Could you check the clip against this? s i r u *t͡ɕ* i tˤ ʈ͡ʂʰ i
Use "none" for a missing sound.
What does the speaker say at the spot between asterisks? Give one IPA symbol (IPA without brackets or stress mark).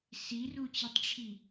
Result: t͡ɕ